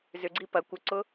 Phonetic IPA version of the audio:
z ʏ ɡ͡ǀ i p ɐ kʷ ə ǀ ʊ

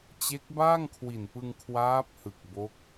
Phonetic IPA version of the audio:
t͡ɕ e˦˥ k̚ b aː˥˩ ŋ kʰ w i˨˩ n p ɯ˧ ŋ kʰ w aː˦˥ p̚ h ɯ˨˩ k̚ b o˦˥ k̚

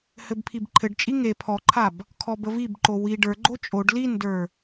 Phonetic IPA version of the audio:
h ɘ b pʰ i b ǃʰ ɘ ɖ t͡ʃʼ i ŋ e pʰ ɔ ǃʰ a b | kʰ ɔ b ə v i b ǃ o w i ɖ ə˞ ɡ͡ǃ o t͡ʃʼ o ɖ l i n d ə˞

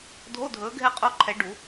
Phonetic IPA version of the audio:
dʱ o˧˥˧ dʱ ɵː˨˦ ɡʱ ɛ˦˨ qʼ o˦˥ ǃʰ ɛ˨˦ ɖ u˨˩˦

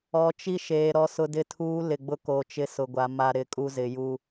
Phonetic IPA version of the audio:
ɔ˨ t͡ʃ i˦ ʃ eː˨ ɾ ɔ˨ s ʊ˨ d ɪ˨ tʰ uː˨˦ l ɪ˨ ɡ͡b ʊ˦ k o˨ t͡ʃ ɪ˦ s ʊ˨ ɡʷ a˨ m a˨ ɾ ɪ˨ kʼ u˦ z ɪ˨ j u˦

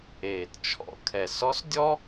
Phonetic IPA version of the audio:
eː˩ t t͡ʃʰ ɔ̰˩˧ kʰ ɛ˩ s ɔ˧˥ s dʲ ɔ˥

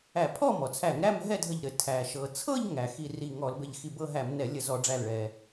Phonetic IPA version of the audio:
æ˧˩˧ pʰ ɔ˥˧ m ɔ˩ t͡sʰ æ˧˩˧ ŋ ɾ æ˥˧ m ɦ ɛ˥˧ dʱ ə˧˩ ʎ ɾ ɘ˩ tʰ æ˩ ʃ ɤ˩ t͡sʰ ɤ˥˧ ʎ ŋ æ˩ x i˧˩ r i˧˩ ŋ ɔ˧˩˧ l b ɘ˧˩ ʎ x i˧˩ b ɤ˥˧ ɦ æ˧˩˧ m n ɛ˧˩˧ lʲ ə˧˩˧ z ɔ˧˩˧ ɖ͡ʐ æ˧˩ l ɭ ɛ˩

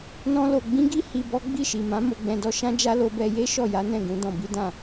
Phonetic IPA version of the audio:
n ɔ̃˦ l o˧ ɡ͡b ĩ˦ ɡ i˦ h i˧ b ɔ˦ ɡ͡b i˦˨ ʃ i˨ m ã˨˦ m o˧ ɡ͡b ɛ̃˧ d ɔ˦ ʃ ã˦ d͡ʒ a˦ l o˧ b ɛ˧ j e˦ ʃ ɔ˦˨ j a˨˦ n ɛ̃˦˨ ɡ ũ˨˦ d ɔ̃˧ b i˦ d ã˦˨

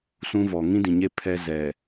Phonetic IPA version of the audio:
s ũ˦ v ɔ˨ ŋ ĩ˦ d ĩ˨ ɲ e˦ pʰ ɛ˦ z ɛ˨

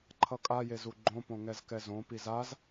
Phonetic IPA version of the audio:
ǃʰ ʌ kʼ a j e z u ɡ͡ǃ õ p õ ŋ ɛ z k ɛ z õ p i z a z

